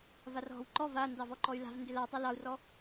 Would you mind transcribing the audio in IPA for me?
v a r ɦ ɔ̤ w ǃ ɔ v a n d ɑ v ɔ ǃ ɔ y̯ l a̤ v n d ʏ l a tˤ i l ɑ u̯ r ɔ

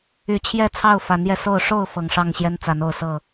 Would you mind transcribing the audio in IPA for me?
y˨˦ t͡ɕʰ j ɛ˥˨ t͡sʰ ɑ˥˨ ʊ̯ f a˨˦ n j ɛ˧ s o˥˨ ʊ̯ ʂ o˥˨ ʊ̯ f ɤ˨˩ ŋ ʂ ɑ˥˨ ŋ ɕ j ɛ˦ n t͡s a˨˦ n o˥˨ ʊ̯ s ɤ˥˨

